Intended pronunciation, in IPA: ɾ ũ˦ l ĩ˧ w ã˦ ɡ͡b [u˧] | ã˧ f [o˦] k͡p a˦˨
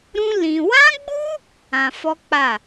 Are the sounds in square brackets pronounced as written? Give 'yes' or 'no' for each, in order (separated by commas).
no, no